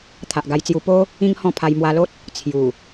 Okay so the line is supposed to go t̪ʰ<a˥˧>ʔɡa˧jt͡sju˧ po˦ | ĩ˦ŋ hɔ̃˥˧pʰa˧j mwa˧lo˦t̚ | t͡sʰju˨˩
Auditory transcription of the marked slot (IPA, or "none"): a˨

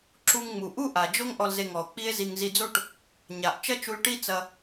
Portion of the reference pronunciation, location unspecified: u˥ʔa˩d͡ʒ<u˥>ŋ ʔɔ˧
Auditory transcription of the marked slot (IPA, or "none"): o˥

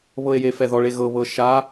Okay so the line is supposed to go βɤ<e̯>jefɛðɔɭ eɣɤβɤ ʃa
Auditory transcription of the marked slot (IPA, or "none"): e̯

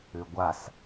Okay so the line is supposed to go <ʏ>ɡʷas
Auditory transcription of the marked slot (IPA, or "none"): ʏ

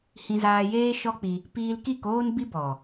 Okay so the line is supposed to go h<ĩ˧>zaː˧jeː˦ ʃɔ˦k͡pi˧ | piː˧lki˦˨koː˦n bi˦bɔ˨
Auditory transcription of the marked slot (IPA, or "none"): ĩ˧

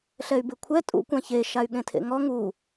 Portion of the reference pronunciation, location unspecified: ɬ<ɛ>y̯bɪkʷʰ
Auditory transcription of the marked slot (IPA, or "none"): ɛ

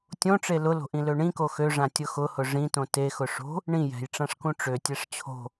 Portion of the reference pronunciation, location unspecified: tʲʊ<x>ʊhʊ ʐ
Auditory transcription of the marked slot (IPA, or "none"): x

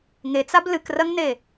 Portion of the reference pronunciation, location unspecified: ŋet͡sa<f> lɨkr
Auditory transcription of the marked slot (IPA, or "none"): b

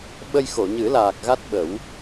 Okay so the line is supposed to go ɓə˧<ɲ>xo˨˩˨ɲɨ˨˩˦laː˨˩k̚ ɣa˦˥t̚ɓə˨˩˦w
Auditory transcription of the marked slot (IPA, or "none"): j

